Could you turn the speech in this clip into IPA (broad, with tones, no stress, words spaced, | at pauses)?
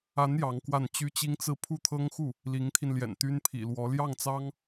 a˧˥n jɑ˧˥ŋkwa˥˩n t͡ɕy˥t͡ɕi˥ŋt͡sɹ̩˥˧ pʰu˥˩t̪ʰɤ˥ŋxu˥˩ | li˧˥ŋt̪ʰi˧nljɛ̰˨˩n t̪y˥npʰḭ˨˩ lwɔ˧˥ ljɑ˥˩ŋt͡sɑ˥ŋ